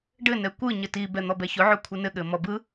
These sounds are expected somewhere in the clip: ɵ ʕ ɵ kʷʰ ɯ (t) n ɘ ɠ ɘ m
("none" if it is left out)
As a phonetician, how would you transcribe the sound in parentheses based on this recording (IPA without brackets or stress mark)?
none